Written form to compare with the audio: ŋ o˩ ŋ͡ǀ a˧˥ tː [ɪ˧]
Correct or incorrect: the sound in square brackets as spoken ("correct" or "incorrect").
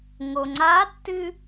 incorrect